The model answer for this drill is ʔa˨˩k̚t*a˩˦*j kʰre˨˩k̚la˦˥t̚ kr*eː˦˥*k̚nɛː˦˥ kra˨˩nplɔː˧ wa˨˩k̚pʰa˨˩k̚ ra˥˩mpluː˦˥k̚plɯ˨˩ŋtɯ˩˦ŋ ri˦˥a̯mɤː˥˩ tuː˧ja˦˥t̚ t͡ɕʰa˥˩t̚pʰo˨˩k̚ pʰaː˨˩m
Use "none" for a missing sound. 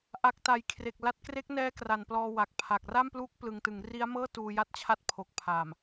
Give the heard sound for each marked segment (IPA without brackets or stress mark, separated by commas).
a˩˦, e˦˥